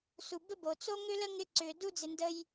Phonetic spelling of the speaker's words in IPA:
su˩bə˥bo˩ t͡so˥ŋʏ˥lə˥ŋɪ˦ ǀʏ˨ du˥d͡zɪ˨ndə˦j

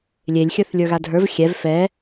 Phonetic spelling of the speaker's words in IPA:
lʲelʲ xʲə˞θlʲə˞ɣadʱə˞v xʲɛv fɛ

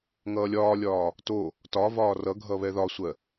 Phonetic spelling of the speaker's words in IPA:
ŋʌːlʲɒːlʲɒː | to | tɒvɒː rʌɡʱʌ βɛðɒsʷɜ

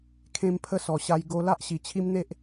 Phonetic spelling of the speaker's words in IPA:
kʰẽ˧mpʰə˧sɔ˨˩ ɕa˧jɡo˧ la˦ʔɕi˨˩t͡ɕʰi˦mn̪e˦ʔ

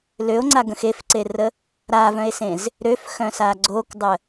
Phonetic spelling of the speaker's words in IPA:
løo̯ŋ͡ǀaɡə̃x efǀerə | ɾavœ̃e̯sẽz | ɾøfxœ̃sa ɡ͡ǀokdˤə

